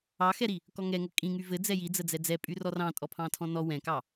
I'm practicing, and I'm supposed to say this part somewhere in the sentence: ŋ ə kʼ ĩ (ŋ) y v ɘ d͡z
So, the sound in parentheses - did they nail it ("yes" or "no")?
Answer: yes